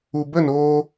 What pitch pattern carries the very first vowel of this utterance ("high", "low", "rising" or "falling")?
low